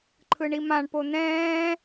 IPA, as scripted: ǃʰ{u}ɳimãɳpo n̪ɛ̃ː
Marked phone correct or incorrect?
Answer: incorrect